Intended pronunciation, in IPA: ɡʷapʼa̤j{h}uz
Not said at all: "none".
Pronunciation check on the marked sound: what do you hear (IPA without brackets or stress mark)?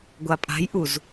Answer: ʔ